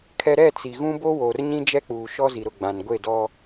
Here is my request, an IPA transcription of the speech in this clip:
kʰ ɛ˦ ɾ ɛ˦˨ t͡s i˨ ɣ ũ˦ b o˦ w oː˨ r ɲ ĩ˦ d͡ʒ ɛ˦ k͡p uː˨ ʃ ɔ˦ z i˨ ɾ ʊ˨ ɡ͡b ã˨ n ɡʷ e˦˨ d ɔ˦

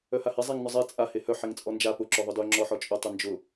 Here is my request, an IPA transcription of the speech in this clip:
œ h a h e zˤ e ŋ n ʊ zˤ e t͡sʼ a h e h œ ħ e ŋ t͡sʼ ɔ n d͡ʒ a p ʊ ǁ œ ðˤ ʊ d œ ŋ͡ǁ ɔ ħ ɔ t͡ʃʼ ʊ tˤ ʊ n d͡ʒ ʊ

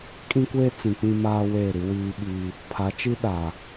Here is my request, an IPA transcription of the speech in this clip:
kʼ ĩ˦ kʷ eː˦ t͡s ĩ˨ k͡p ĩ˦ m aː˦ w eː˦˨ ɾ i˦ w iː˦ ɓ i˦ | pʰ a˨˦ t͡ʃ i˦ ɗ a˨

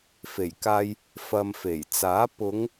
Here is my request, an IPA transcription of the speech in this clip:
f e˨˩ j k aː˧ j | f ɐ˨ m f e˨˩ j t͡s aː˨˥ p ʊ˨˧ ŋ

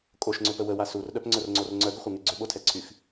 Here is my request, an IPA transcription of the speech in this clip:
kʼ o ʃ ŋ͡ǀ ʏ p ə w ə w a s u r ɗ œ p ŋ͡ǀ œ r ŋ͡ǀ o r ŋ͡ǀ œ ɡ ʏ χʷ ɛ ŋ y ɡ͡ǀ ʏ ɓ o tʰ ɛ ǀʰ y x

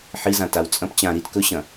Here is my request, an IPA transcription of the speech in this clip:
ħ i z ã t a w t͡sʼ ɐ̃ p t͡ɕ ã ɾ i t k ɵ ɕ ɐ̃

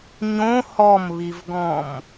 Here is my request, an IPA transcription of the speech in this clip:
ɲ õ h ɔ m β i v ɡ ɔ̃ m

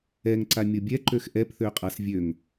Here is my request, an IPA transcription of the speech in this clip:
ɛ ŋ ǀ a mʲ o bʲ ɛ ǃ ø x ʔ ɛ p θ ø qʼ a s vʲ ø ŋ

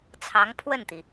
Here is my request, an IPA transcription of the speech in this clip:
t͡sʰ ɑ˧˥ ŋ pʰ w ə˥˩ n t̪ i˩

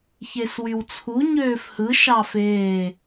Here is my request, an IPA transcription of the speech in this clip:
ç e s w y w t͡sʰ u ɲ øː f h ɯ ʃ ɑ f eː

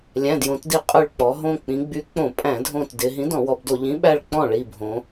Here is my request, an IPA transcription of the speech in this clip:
lʲ æ̃˩˧˩ d j õ˩˧ t d i˧˩ qʼ y˧˩ ɭ k͡p ɔ˩˧ ɦ õ˧˩ k͡p ĩ˩˧ ɡ͡b y˨˥ k͡p õ˧˩˧ pʼ æ̃˧˩˧ dʱ õ˧˩ t d ɪ˩˧ ɦ ĩ˨˥ d ɔ̃˧˩˧ w ɔ˩˧ b d o˧˩˧ ʎ ĩ˨˥ ɓ æ˥˩ ɭ k͡p ɔ̃˥˩ ɭ i˧˩ bʱ õ˩˧

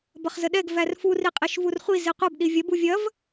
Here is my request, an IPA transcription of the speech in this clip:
b ɐ χ z ə ɗ ɛ ɡ v æ r f u r i qʼ i ʃ v u r χʷ i z i qʷ ɐ b ɗ i vʲ ɐ b u vʲ ɐ v

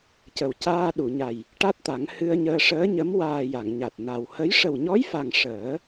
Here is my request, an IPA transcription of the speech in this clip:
c ə˨˩ w c aː˧ ɗ u˨˩˨ ɲ a˨˩ j | ʈ a˦˥ t̚ t̪ a˨˩˦ ŋ h ɨ˧ ə̯ ɲ əː˧ ʂ əː˧˥ ɲ ə˧˥ m w aː˨˩ j a˨˩˨ ŋ ɲ a˨˩ t̚ n a˨˩ w h ə˧˥ j ʂ ə˨˩ w ɲ ɔ˧˥ j f a˨˩ ŋ ʂ əː˨˩˦

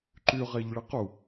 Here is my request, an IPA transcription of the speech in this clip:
ǃ y ʁ e ʎ ɭ ɪ q u

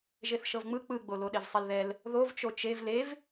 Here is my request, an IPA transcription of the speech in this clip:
ʒ e θ ʃ ɤ v ŋ͡m ɯ k͡p ɯ ɡ͡b o l o ɗ e v sˤ e l ð ɛ l | ð o v t͡ʃ o t͡ʃ e v l e v

